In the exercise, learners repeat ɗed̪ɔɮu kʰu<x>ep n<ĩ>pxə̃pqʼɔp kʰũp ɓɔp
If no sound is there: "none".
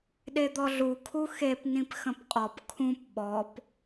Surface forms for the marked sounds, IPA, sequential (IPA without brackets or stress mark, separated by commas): x, ĩ